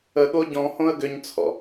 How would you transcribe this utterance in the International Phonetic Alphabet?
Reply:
ə ɠ o ɟ ɔ̃ h õ ə̯ ɡ ʏ ɲ t͡sʰ ɔ̰

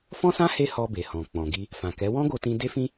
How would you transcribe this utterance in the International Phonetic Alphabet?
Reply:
f ɔ̃˦ s ã˦ h e˦ h ɔ˧ b e˨ h ɔ̃˨ k͡p ɔ̃˨ ɡ i˧ | f ã˨ k ɛ˨˦ w ɔ̃˦ ɡ o˧ t ĩ˧ d e˦ f ĩ˦

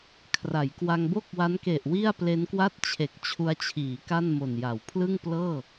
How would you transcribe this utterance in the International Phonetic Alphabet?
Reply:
kʰ r a˩˦ j k w a˧ ŋ b o˥˩ k̚ w a˦˥ n k e˨˩ ʔ w i˥˩ a̯ p l e˦˥ n k w a˥˩ t̚ t͡ɕʰ e˨˩ k̚ t͡ɕʰ u˧ a̯ t͡ɕʰ iː˩˦ k a˥˩ n m o˨˩ n j a˩˦ w pʰ l ɯ˥˩ ŋ p l ɤː˥˩

